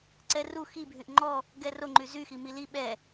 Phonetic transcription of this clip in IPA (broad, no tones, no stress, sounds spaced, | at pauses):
ǀ ɛ r u x i bʱ y ʔ ŋ͡ǃ ɔ | ɡ ɛ r o ŋ͡ǃ y z y x i m i l i ɓ ɛ